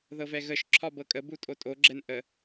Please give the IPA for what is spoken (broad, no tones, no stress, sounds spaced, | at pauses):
ð ɤ v ɛ ɣ ə ʃ ǁʰ ɒ b ɤ kʼ ə b u tʼ o tʼ o ɡ͡ǁ ɛ n ʔ ə